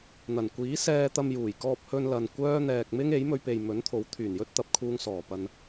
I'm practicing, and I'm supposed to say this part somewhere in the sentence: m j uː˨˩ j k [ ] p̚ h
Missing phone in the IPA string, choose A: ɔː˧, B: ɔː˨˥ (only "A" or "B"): A